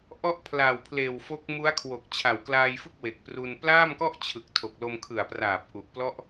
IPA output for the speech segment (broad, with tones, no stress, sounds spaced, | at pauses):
ʔ ɔ˦˥ ʔ pʰ l aː˨˩ w pʰ l eː˨˩ w f o˦˥ k̚ m u˦˥ a̯ kʰ w o˨˩ k̚ t͡ɕʰ a˨˩ w k l aː˧ j f ɯ˥˩ k̚ w e˨˩ k̚ p r u˧ n p l aː˥˩ m k ɔ˥˩ ʔ t͡ɕʰ ɯ˨˩ k̚ tʰ o˨˩ k̚ l o˧ m kʰ ɯ˨˩ a̯ p r aː˨˩ p̚ ʔ u˨˩ ʔ p l ɔ˥˩ ʔ